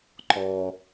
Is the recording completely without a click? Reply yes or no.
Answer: no